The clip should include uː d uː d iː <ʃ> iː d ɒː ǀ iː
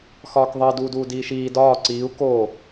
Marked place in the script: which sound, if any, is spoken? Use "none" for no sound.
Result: ʃ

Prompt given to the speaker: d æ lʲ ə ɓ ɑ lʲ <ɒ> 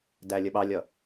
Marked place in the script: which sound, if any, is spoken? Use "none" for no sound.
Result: ʌ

